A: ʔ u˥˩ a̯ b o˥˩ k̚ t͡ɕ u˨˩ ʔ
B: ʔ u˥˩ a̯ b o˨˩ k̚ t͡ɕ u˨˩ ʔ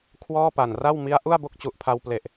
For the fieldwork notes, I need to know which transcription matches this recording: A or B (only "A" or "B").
A